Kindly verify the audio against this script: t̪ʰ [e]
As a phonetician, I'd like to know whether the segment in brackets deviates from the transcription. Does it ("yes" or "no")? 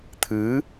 yes